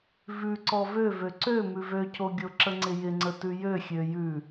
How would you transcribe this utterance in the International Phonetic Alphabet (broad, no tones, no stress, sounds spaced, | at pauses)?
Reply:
v ʉ ǀ ɔ v ø v ø ǀ ø m ʉ v ø cʰ o ɡʲ o ǁ ə ŋ͡ǀ ɪ j ɪ ŋ͡ǀ ə t ʉ j ø xʲ ø j ʉ